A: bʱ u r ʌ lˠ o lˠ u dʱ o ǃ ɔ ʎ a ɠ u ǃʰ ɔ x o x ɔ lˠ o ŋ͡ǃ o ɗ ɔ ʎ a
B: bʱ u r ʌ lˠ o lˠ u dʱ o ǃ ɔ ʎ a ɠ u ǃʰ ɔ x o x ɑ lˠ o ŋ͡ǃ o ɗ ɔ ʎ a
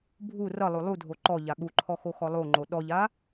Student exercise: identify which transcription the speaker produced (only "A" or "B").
A